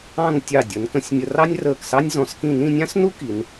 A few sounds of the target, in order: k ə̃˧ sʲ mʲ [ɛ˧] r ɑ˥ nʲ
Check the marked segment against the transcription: incorrect: ə˧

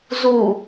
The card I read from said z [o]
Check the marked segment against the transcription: incorrect: u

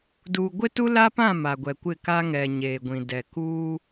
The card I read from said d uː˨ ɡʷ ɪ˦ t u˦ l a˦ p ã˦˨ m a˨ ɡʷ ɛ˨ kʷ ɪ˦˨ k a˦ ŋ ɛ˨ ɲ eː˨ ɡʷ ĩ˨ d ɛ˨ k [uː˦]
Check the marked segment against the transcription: correct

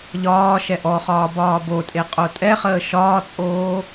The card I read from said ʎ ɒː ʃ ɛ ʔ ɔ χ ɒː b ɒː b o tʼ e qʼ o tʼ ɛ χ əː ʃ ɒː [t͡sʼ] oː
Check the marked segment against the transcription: correct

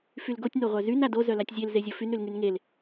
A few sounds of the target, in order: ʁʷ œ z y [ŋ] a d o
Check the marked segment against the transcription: incorrect: n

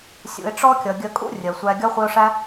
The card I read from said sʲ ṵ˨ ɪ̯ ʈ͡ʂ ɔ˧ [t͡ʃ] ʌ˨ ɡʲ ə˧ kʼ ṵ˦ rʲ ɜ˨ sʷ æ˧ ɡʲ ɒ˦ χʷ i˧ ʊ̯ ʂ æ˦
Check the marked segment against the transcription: incorrect: kʲ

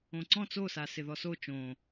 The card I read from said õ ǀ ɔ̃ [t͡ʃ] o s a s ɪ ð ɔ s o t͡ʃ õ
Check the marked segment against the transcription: incorrect: t͡s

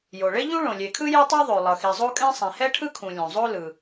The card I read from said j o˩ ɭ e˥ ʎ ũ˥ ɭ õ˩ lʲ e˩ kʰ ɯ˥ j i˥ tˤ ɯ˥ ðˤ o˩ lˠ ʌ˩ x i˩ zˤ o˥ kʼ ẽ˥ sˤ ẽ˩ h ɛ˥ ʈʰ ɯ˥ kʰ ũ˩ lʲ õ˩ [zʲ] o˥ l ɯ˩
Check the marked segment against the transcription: incorrect: zˤ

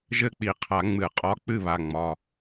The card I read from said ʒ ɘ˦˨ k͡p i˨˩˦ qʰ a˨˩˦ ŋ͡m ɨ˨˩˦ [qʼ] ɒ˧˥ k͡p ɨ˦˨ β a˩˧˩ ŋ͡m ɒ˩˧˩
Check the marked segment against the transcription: correct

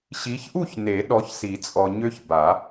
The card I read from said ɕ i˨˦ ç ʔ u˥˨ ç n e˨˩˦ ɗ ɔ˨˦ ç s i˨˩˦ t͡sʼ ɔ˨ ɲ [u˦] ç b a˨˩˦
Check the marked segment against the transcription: incorrect: ø˦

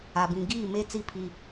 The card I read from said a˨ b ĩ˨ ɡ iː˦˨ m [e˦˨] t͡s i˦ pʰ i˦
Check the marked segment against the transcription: incorrect: e˦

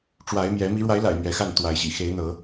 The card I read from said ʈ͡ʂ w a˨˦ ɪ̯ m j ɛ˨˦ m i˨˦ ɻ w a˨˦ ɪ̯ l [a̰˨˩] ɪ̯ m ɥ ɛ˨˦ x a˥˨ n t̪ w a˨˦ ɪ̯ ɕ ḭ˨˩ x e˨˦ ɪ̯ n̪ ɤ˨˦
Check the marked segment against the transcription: correct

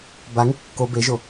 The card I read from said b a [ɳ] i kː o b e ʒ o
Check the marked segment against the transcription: incorrect: ŋ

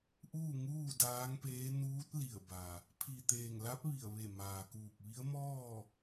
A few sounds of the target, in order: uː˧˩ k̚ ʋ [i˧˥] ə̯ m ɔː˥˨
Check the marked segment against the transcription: correct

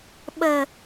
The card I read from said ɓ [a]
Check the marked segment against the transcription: incorrect: ə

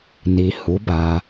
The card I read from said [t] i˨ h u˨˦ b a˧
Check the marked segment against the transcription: incorrect: n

